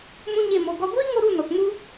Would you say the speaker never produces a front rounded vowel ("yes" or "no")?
yes